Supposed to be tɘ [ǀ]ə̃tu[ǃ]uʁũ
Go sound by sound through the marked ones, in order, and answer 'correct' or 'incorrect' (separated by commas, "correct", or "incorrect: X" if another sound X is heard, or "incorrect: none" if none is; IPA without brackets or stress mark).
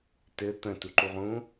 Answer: incorrect: t̪, correct